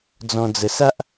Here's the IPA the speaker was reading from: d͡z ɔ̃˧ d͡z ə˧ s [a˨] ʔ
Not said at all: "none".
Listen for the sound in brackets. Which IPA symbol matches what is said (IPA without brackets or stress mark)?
a˦